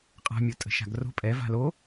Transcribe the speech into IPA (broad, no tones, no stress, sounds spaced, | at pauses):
qʼ a̤ mʲ o tʼ ə̤ ʃ a̤ ɡ r o̤ pʼ ɛ v a̤ l o